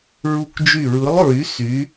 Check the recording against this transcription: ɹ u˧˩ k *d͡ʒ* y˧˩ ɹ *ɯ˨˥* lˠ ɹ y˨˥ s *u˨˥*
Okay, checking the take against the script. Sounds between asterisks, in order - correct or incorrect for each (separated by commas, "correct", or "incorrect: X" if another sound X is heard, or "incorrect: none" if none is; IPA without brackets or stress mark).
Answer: correct, correct, incorrect: y˨˥